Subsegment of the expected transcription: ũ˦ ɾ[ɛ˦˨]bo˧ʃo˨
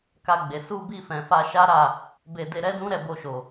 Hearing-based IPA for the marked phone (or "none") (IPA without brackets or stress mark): ɛ˦˨